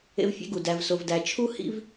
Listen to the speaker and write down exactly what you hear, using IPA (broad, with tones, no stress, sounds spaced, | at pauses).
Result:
ḛ˧ v fʲ ḛ˧ ɡ u˨ d æ˧ v s o˧ v d æ˧ t͡ʃʰ u˦ h ḭ˦ v